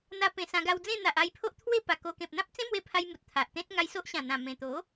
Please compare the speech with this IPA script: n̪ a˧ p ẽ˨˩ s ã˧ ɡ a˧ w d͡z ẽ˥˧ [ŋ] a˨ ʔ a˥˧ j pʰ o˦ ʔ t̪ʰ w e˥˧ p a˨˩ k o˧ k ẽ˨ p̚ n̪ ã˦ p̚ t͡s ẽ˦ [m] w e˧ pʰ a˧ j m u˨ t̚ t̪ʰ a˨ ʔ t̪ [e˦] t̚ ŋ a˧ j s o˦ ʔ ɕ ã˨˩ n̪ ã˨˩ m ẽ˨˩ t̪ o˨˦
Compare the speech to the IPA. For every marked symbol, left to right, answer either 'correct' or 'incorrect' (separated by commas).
incorrect, correct, incorrect